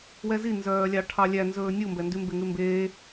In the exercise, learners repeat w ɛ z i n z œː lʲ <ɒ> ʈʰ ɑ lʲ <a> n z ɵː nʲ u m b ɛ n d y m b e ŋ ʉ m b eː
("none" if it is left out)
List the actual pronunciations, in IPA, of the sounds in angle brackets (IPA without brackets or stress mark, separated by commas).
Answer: ɑ, æ